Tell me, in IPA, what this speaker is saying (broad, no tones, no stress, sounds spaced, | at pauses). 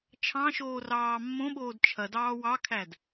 t͡ʃʰ ɑ̃ ʃ oː r ɑː mː õ ɓ oː d t͡ʃʰ ɐ d ɑː w ɑ kʰ æ d